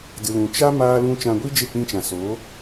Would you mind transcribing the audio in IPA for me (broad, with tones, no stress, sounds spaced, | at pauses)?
d ɨ˨ l ũ˨ t͡ʃ a˦ m aː˦ l ũ˦ t͡ʃ ã˧ ɡʷ i˦ d͡ʒ e˦˨ k͡p ĩ˧ t͡ʃ ã˨ s o˨˦